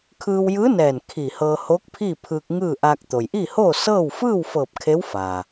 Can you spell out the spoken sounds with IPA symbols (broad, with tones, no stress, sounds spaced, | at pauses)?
kʰ ɯː˧ w j ɯː˧˥ n ɛː˧˩ n kʰ i˧˩ h ɤː˧ h oː˧˥ k̚ pʰ iː˥˨ pʰ ɯː˧ k̚ ŋ ɯː˥˨ ʔ aː˧ k̚ t̪ o˩ j ʔ i˥˨ h oː˥˨ s ɤː˥˨ w f ɯː˥˨ w f ɤː˧˩ p̚ kʰ e˧˥ w f aː˩